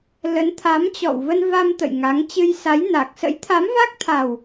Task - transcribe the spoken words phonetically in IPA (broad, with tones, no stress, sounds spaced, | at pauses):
l ə˨˦ n t̪ʰ a˨˦ m t͡ɕ ɔ̰˧˨ w v ə˧ n v a˧ m t̪ ə̰˧˨ j ŋ a˨˦ ŋ t͡ɕ ɨ˧ j s a˨˦ j n a˨˩ k̚ s ə̰˧˥ j t̪ʰ a˨˦ m v a˦˥ k̚ t̪ʰ a˨˩ w